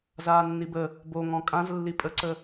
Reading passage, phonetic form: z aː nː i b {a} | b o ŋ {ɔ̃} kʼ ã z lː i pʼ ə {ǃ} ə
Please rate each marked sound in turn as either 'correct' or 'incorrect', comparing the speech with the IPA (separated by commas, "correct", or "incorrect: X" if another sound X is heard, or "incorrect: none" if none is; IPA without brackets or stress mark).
incorrect: ə, correct, incorrect: ǀ